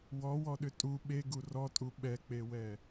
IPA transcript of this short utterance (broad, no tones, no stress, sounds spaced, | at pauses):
w ɔ w ɔ ɗ ʏ tʼ u ɓ e ɡ u r ɔ tʼ u ɓ ɛ k͡p e w ɛ